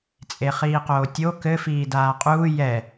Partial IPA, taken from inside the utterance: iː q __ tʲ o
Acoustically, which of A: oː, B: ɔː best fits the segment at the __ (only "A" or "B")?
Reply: A